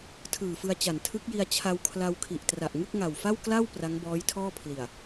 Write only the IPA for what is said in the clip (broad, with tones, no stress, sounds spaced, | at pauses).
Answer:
tʰ ɯː˨˩ f ɯ˧ a̯ t͡ɕ a˨˩ n tʰ ɯ˦˥ k̚ j i˧ a̯ t͡ɕʰ a˧ w kʰ l a˧ w kʰ i˨˩ ʔ t r a˨˩ ʔ ŋ ɯ˥˩ k̚ ŋ a˨˩ w f a˥˩ w k l a˥˩ w p r a˦˥ ŋ b ɔː˦˥ j tʰ ɔː˥˩ pʰ l i˨˩ a̯